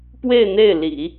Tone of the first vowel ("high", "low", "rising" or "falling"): falling